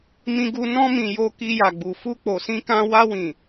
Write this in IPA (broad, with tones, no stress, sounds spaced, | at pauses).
m ĩ˧ ɡ u˧ n ɔ̃˧ m ĩ˨ j o˧ k i˧ j a˨ ɡ͡b u˨ f u˧ k͡p o˨ s ĩ˧ k ã˧ w a˧ w ĩ˨